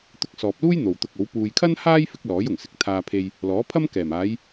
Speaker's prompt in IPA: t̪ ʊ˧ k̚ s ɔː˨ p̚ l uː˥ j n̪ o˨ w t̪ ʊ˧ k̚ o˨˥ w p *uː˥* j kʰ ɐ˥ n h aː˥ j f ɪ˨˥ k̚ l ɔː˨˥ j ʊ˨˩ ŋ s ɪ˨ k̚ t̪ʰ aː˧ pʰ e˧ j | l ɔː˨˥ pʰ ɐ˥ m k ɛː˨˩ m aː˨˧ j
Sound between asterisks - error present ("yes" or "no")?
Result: yes